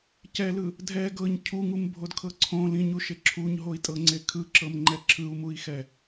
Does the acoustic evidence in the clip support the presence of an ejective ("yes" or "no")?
yes